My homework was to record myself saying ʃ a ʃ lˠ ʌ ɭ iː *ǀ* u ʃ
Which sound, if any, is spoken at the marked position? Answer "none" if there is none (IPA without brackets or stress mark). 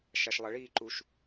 ǃ